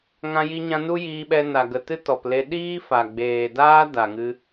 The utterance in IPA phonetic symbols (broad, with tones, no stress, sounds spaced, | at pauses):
ŋ ã˧ j i˧ ɲ ã˧ n u˦ j iː˧ ɓ ɛ˧ n a˨ ɡ ə˨ t ɨ˦ t ɔ˨ p l e˧ ɗ iː˦ f a˨ ɡ͡b eː˨ d aː˦ d a˨ ŋ ɨ˦